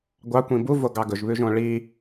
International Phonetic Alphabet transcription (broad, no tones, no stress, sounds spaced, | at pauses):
ɡʷ ɑ kʷ ĩ b u v o ɡ ɑ ɡ ɵ ʒ β ʉ ʒ õ ɭ i